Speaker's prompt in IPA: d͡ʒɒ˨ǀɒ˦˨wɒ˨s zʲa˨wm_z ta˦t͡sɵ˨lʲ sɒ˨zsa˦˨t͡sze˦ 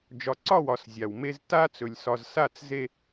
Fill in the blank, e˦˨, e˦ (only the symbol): e˦